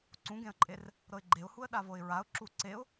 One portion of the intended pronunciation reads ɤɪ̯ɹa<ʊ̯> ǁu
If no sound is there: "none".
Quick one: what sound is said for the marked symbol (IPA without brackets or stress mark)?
ʊ̯